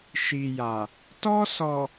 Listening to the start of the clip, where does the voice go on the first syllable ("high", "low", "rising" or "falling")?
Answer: low